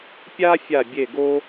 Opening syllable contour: high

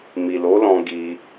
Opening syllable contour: low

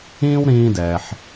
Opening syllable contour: high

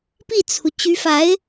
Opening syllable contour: falling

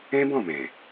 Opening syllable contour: high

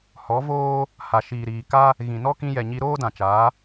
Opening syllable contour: rising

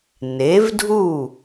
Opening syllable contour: rising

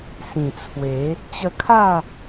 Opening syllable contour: low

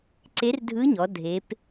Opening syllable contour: rising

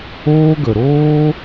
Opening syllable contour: high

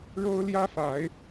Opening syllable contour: high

